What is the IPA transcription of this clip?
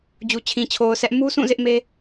d͡ʑ u˨ t͡ɕʰ ĩ˨ t͡ɕʰ o˨ ʊ̯ sʰ ɛ˦ ʔ m u˦ s ũ˦˨ z ɪ˦ ʔ m e˦

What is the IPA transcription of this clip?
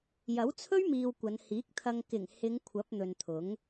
j ɐ˨˥ w t͡sʰ ɵ˥ ɥ m iː˨ w kʷ ɐ˨˧ n h iː˨˥ k̚ t̪ʰ ɐ˧ ŋ k ɪ˨˩ ŋ h ɪ˨˧ ŋ kʷʰ ɐ˨˥ p̚ n̪ ɵ˨ n t̪ʰ ʊ˨˥ ŋ

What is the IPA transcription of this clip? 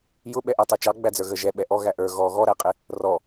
j ʊ ɓ ɛ ʔ æ tˤ ə˞ t͡ʃ ɑ ɡ͡b æ d͡z ə˞ ɣ ə ʒ ɛ ɓ ɛ ʔ ɔ ɣ æ ʔ ə˞ ɣ ɔ ɣ ɔ ɾ æ qʼ ɪ | r ɔ

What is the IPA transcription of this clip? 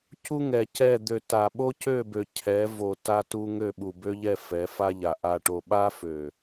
c u˦ ŋ ɛ˨ c ɛ˦˨ d̪ ø˨ t a˨ ɓ o˦ c ø˦˨ b ø˨ cʰ ɛ˨˦ v o˨ t a˦ t u˦ ŋ ø˦˨ ɓ u˨ b ø˦ ʎ ɛ˦˨ f ɛ˨˦ f a˦ ʎ a˨ ʔ a˨ ʈ o˨ ɓ a˦ f ø˨

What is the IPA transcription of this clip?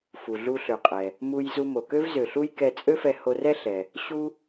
f u˩ ɮ u˧ ɬ ø˩ qʼ ɛ˩ | m u˧ j z u˧ m o˩ k ø˥ v z ø˩ ɬ u˥ j k ɛ˧ t͡sʼ ø˥ f ɛ˧ h o˧ r ɛ˥ ɬ ɛ˩ | ɕ u˥

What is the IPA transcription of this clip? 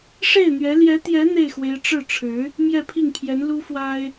ʂ e˥˩ ɪ̯ n̪ ɥ ɛ˧˥ l j ɛ˧˥ t̪ j ɛ˧˥ n̪ e˥˩ ɪ̯ x w e˧˥ ɪ̯ ʈ͡ʂ ɻ̩˥˩ ʈ͡ʂʰ ɻ̩˧˥ | m j ɛ˥˧ pʰ i˥˩ ŋ pʰ j ɛ˧˥ n l u˥ f w a˥ ɪ̯

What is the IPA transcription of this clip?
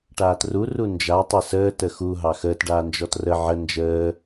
ʈ aː t r u r u n d͡ʒ a tˤ e s əː t ə x u ɦ ɑ x əː t ɖ aː n d͡ʒ ɔ t r ə ʕ ə n d͡ʒ əː

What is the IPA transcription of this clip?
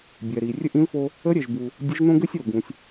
bʲ ɛ˩ ɾ i˩ rʲ ɘ˥ ʔ ĩ˧˥ l f o˧ | ə˧˥ ɾʲ ɛ˩ ʒ b u˩ | dʲ ɘ˧˥ ʒ n õ˥ ɡ ɘ˥ sʲ o˩ ɡ ũ˩ sʲ

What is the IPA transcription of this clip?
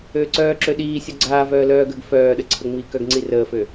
øː ǀ œː ǁ ø ɗ iː sʲ ɔ ɡ͡ǀ aː v œː l œː ɡ əː ɡ f œː ɗ ə ǀʰ ə ŋ͡m i k œ ɡ ŋ͡ǀ i r əː f ø

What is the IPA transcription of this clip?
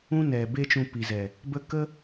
ũ˦ n ɛ˨ b e˦ t͡ʃ ũ˧ p i˨ z ɛ˨ | b ə˦ k ə˦

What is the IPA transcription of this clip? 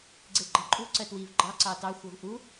ɡ͡ǀ e ɡ͡ǃ ɑ ǃʼ u ǀ ɜ t w i v ɡ͡ǃ ɑ ǀ ɑ t ɑ xʷ ɜ v ʔ u

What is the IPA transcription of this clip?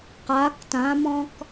q a k t ã m ɔ̃ k

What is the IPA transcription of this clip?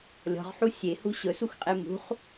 lʲ ɔ̤ ʁ ħ u sʲ e h u ɕ ɵ s u x qʼ e m ṳ χ

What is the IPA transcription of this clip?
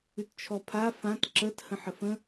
ʉ t t͡ʃʰ ɔ pʰ a f ã t ǁ ə t h ə̃ ħ ə f ə̃

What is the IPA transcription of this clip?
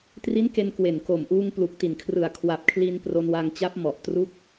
t r i˦˥ n k e˧ n k w e˨˩ n k o˨˩ m ʔ uː˧ ŋ p l u˨˩ k̚ t i˨˩ n kʰ r ɯ˨˩ a̯ kʰ w a˨˩ p̚ kʰ l i˧ n p r o˧ n w a˧ ŋ t͡ɕ a˦˥ p̚ m ɔ˨˩ ʔ t r u˦˥ k̚

